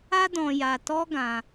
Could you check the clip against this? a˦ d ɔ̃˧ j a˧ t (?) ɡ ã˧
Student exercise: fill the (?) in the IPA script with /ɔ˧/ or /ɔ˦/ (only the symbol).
ɔ˦